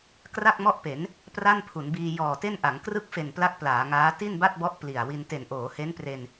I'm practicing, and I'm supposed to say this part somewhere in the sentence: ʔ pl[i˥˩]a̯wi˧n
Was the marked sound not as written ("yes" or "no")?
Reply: yes